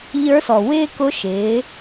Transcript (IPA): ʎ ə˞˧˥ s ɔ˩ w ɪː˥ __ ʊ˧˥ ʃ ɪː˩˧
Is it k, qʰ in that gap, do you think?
k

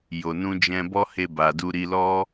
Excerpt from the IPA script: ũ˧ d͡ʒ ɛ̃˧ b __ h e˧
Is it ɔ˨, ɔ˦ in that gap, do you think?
ɔ˦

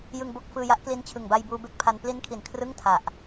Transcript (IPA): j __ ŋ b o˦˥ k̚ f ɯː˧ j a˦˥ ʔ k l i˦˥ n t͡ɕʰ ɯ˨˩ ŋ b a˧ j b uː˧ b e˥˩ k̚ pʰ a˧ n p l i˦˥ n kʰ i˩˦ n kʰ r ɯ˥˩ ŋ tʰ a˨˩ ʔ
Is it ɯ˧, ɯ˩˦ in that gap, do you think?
ɯ˧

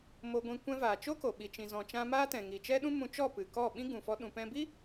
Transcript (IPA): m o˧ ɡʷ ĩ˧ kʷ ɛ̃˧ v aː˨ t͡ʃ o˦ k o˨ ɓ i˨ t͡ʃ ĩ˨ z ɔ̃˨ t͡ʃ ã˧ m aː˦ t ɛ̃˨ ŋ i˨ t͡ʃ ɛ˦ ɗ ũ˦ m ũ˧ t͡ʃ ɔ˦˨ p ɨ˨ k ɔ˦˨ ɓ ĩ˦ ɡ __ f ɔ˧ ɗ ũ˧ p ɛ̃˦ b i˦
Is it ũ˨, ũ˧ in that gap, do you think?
ũ˨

